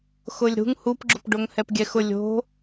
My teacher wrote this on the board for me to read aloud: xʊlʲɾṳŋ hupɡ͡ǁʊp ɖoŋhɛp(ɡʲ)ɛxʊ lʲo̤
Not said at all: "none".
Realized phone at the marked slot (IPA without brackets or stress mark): ɡʲ